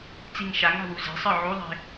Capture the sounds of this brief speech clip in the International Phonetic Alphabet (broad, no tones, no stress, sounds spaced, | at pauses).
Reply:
t͡s i ŋ ʃ a ŋ a̤ w u z e̤ sˤ ə˞ ʕ u ðˤ e̤